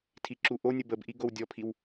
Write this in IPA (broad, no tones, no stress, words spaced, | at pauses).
tʰiǁuʔonʲə bəbʔi ɡowdʲɔpʰiw